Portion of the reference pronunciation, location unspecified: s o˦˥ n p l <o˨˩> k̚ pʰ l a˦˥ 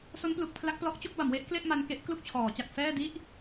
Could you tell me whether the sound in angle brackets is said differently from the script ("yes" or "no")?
yes